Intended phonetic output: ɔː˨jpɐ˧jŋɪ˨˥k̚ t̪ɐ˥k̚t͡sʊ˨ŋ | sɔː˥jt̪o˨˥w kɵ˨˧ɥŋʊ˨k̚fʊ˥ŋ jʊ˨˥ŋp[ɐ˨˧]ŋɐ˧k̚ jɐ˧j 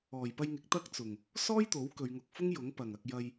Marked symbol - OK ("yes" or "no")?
no